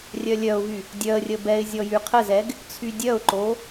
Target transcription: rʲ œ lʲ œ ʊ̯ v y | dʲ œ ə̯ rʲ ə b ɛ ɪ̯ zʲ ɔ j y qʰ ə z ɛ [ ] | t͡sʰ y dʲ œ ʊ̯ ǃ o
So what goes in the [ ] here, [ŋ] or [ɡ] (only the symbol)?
ɡ